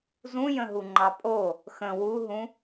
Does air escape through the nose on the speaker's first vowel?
yes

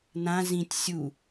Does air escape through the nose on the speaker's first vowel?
yes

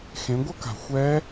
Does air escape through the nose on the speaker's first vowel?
yes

